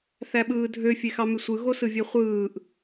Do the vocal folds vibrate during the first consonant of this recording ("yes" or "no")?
no